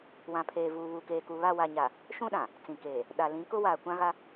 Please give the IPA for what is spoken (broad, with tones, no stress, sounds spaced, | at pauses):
w ã˨ pʰ eː˨ v uː˨ β u˨ k eː˨ k u˨ β a˦˨ w a˨ ɲ a˨ | ʃ ũ˦ ɗ ã˨ | t͡s ĩ˨ k eː˨ | ɗ a˨ l ĩ˨˦ k ʊ˦ w aː˨ kʷ ã˦ ɣ a˦